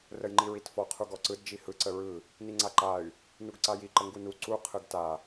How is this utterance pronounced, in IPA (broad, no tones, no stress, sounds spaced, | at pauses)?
r ə j ŋ͡ǃ i ɹ i t f ɔ qʰ u ɡ ɔ ǀ ɯ d d͡ʒ i h ɯ ǀ ə ɹ ɯ | n i ŋ͡ǀ a ǃ a y̯ | n u ɡ ǀ a j i ǃ ə ŋ ɡ u n u ǀ u qʰ ɯ ɡ t a